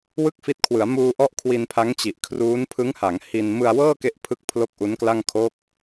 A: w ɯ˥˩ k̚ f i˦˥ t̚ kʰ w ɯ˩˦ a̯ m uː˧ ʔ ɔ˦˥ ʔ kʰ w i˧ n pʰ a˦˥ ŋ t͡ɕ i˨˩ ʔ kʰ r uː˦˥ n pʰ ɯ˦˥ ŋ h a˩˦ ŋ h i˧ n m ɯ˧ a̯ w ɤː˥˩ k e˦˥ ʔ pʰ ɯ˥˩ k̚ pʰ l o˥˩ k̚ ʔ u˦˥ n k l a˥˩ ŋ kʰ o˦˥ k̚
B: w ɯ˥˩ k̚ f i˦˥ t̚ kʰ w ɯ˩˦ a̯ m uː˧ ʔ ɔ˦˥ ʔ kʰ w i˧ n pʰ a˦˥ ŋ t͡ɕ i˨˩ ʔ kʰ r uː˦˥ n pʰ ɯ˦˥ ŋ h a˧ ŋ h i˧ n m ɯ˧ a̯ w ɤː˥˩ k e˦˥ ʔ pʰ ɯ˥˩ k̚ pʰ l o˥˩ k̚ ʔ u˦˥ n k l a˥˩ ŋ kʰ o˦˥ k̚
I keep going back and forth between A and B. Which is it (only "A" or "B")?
A